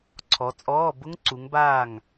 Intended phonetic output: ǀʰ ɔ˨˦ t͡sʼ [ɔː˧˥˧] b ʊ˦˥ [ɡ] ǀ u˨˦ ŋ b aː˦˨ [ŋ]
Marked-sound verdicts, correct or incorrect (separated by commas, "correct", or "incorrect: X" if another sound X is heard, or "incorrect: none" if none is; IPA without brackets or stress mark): correct, incorrect: ŋ, correct